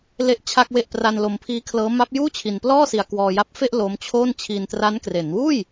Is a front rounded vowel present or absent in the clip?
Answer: absent